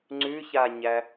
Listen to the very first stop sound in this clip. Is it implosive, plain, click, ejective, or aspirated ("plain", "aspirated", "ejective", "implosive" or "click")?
click